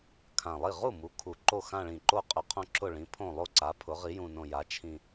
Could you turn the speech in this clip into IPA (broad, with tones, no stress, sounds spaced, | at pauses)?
kʰ ã˨˩ lˠ i˥˩ ʁ u˥˩ m u˩˥ kʰ u˨˩ ǃ o˥˩ x ã˥˧ ɭ ĩ˨˩ ǃ o˥˩ qʼ ʏ˨˩ qʰ õ˥˧ ǁ ʊ˥˩ ɭ ĩ˩˥ pʰ õ˥˩ lˠ o˥˧ ǀ a˩˥ pʰ ʊ˩˥ ʁ i˩˥ j ũ˨˩ n õ˨˩ j a˩˥ t͡ʃʰ ĩ˨˩